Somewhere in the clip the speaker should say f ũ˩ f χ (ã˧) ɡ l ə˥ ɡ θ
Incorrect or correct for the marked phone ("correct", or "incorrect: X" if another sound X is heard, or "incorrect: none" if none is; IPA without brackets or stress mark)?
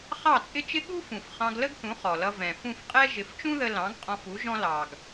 incorrect: ɑ̃˧